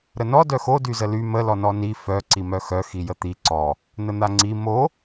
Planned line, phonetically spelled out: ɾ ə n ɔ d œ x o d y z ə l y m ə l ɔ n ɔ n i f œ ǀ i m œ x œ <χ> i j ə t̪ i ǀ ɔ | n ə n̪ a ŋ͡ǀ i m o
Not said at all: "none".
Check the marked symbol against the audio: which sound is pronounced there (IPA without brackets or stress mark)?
x